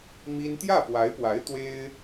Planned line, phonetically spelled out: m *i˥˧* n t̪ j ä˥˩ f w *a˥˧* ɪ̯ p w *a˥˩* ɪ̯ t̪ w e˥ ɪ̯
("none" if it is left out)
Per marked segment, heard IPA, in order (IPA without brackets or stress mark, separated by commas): i˥, a˧˥, a˧˥